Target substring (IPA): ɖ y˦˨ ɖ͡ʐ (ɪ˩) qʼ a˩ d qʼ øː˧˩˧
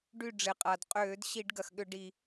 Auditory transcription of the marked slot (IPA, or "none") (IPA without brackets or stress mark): ɪ˩